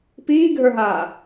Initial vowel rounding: unrounded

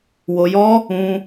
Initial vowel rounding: rounded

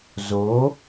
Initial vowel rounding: rounded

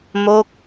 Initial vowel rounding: rounded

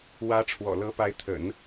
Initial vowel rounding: unrounded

